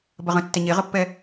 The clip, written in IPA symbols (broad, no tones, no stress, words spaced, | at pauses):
bɐʁə̃ tːɛɲeʁəpːɛ